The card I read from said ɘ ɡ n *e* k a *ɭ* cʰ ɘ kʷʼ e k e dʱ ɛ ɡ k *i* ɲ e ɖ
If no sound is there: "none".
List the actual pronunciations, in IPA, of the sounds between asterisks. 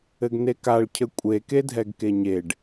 e, ɭ, e

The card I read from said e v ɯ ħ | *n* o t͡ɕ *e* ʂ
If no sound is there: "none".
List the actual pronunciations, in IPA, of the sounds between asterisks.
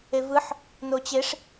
n, e

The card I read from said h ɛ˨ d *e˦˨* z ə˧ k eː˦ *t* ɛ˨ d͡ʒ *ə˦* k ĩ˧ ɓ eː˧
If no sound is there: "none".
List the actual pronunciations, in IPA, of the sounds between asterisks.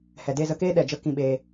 e˦˨, ɗ, ə˦

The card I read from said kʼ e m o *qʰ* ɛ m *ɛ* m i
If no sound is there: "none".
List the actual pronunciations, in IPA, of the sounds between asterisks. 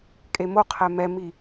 qʰ, ɛ

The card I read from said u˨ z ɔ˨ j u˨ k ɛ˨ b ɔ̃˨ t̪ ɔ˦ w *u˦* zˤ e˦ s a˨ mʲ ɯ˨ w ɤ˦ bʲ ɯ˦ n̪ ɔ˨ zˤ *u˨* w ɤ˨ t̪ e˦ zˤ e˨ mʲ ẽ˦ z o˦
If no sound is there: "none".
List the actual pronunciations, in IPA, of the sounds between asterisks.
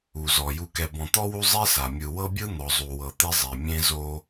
u˦, u˨

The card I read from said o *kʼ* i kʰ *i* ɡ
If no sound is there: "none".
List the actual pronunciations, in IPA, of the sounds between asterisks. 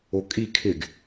kʼ, ɪ

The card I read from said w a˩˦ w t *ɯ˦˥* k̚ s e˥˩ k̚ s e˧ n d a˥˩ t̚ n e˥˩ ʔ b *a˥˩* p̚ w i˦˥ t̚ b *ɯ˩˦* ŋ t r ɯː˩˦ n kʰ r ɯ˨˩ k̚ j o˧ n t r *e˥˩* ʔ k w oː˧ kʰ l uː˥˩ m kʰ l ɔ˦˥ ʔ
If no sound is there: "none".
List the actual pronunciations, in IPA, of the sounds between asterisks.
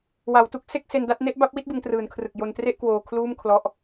u˦˥, a˥˩, ɯ˩˦, e˥˩

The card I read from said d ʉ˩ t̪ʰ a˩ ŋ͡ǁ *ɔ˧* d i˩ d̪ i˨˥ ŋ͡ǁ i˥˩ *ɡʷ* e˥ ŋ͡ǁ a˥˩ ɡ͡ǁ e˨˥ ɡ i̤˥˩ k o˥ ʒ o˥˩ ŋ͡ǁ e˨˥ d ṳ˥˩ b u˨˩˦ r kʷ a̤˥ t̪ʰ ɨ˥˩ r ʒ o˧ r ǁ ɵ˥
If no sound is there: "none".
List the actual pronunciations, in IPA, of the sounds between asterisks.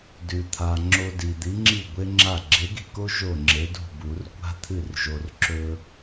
o˧, ɡʷ

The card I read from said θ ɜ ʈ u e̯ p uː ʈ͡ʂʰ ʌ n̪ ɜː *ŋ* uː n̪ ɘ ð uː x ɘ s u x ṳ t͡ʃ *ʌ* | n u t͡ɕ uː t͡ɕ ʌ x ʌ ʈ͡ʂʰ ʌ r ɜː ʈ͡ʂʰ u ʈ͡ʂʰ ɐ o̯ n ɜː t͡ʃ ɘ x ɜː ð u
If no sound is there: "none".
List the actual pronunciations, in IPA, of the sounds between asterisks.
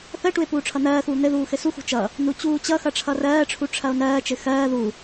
x, ʌ

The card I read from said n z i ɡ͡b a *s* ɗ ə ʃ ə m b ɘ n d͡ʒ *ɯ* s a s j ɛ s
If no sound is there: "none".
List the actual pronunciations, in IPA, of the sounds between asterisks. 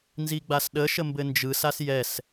s, ɯ

